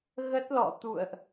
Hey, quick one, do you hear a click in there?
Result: no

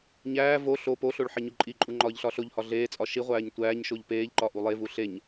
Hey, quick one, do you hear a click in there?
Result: yes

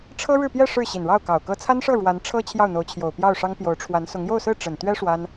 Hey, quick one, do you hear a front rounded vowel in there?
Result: no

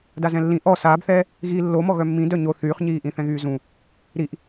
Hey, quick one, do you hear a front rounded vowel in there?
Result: yes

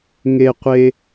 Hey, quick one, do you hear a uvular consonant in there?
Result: yes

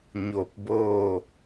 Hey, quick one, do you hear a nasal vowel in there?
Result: no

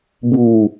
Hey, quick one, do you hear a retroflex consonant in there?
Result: no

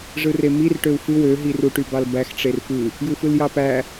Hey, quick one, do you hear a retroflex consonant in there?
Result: yes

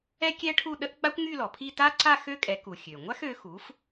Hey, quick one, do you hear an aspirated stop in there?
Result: yes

